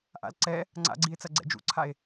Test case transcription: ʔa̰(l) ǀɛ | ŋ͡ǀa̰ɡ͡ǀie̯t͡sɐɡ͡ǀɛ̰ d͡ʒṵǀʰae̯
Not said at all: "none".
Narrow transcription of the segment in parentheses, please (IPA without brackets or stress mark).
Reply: l